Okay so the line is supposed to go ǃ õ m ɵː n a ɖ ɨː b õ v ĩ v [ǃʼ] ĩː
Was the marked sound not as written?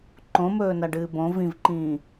yes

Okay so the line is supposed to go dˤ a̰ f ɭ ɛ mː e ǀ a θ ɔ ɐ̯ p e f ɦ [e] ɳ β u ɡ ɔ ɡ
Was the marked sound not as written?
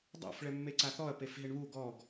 no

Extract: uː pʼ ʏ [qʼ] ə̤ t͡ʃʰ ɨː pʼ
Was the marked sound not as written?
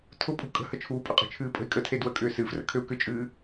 no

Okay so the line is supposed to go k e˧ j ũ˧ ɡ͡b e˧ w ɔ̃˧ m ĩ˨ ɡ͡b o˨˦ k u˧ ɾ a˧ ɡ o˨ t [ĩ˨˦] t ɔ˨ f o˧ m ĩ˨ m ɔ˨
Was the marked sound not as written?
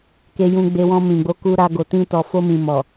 yes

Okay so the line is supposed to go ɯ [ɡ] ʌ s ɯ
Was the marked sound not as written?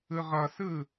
yes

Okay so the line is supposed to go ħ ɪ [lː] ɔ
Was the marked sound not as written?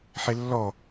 no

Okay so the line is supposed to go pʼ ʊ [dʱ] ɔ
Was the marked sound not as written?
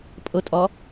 yes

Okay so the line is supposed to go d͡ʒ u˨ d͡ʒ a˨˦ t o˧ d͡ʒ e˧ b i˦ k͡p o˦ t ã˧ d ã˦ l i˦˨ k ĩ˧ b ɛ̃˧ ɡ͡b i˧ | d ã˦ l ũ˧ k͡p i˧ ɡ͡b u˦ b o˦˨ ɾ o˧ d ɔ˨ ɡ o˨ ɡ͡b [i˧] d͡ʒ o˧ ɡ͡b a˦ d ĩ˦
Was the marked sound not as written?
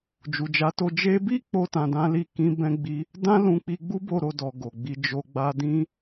no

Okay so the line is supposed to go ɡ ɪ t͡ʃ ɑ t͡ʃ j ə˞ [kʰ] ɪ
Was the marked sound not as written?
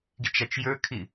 no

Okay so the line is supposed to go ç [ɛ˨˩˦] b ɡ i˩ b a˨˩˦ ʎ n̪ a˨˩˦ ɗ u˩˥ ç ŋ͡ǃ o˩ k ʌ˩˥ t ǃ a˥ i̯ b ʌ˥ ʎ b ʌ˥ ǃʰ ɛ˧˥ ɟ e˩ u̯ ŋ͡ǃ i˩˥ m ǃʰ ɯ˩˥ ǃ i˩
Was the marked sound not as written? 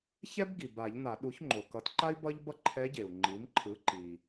yes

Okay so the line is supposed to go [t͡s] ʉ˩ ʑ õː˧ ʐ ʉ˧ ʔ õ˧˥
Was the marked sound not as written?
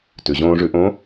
yes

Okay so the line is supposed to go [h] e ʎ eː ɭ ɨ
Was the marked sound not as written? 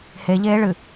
no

